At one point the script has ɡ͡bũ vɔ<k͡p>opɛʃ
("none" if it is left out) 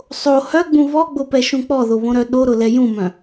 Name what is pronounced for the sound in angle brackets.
ɡ͡b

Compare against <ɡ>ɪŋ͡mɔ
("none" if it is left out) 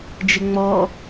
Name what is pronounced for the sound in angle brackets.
d͡ʒ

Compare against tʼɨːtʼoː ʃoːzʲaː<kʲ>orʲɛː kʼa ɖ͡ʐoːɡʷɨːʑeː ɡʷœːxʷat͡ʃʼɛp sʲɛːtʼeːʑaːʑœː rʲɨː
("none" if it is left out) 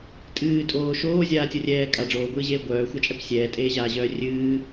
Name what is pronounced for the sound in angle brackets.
tʲ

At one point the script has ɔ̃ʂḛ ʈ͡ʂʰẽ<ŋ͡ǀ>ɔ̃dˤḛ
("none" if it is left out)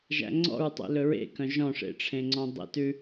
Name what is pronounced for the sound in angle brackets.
ŋ͡ǀ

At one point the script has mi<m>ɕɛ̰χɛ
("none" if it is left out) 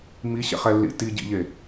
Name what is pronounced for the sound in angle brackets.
none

